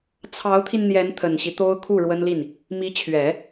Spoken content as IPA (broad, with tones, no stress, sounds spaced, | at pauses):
t͡sʰ ɑ˧˥ ʊ̯ t̪ʰ i˧ n n̪ j ɛ˧˥ n t̪ʰ ə˨˩ n ɕ i˦ t̪ o˥ ʊ̯ kʰ u˥˩ ɻ w ə˥ n l i˥˩ n | m i˧˥ t͡ɕʰ ɥ ɛ˨˩˦